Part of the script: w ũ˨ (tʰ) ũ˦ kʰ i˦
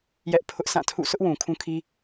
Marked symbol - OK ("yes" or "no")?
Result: no